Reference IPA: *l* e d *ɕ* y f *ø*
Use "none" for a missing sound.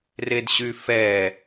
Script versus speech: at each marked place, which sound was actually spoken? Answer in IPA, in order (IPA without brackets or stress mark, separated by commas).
r, ɕ, ɛ